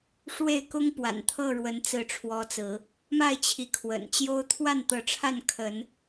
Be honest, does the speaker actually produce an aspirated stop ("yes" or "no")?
yes